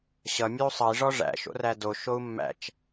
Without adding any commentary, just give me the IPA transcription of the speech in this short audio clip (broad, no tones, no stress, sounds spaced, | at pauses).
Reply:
ɕ ʌ mʲ ʉ u̯ sˤ ʌ i̯ ʐ ɔ ʐ æ̰ ʃ o̰ r æ d o ʃ o u̯ mː æ̰ t͡ʃ